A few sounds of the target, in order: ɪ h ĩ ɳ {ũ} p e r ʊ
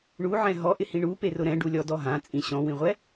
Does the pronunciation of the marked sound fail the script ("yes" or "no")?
yes